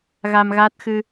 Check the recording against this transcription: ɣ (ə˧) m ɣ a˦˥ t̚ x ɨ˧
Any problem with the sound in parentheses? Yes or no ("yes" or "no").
yes